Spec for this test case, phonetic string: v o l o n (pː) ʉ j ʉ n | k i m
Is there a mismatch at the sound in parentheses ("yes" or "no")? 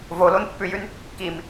no